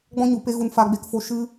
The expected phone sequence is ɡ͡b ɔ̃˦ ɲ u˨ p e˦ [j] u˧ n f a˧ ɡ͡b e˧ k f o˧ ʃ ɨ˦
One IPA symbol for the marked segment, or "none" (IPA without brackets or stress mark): ɣ